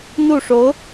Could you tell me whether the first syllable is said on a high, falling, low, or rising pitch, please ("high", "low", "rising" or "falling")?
falling